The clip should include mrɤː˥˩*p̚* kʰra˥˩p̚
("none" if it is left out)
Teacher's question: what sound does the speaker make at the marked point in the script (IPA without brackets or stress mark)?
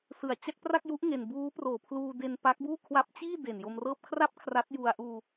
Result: p̚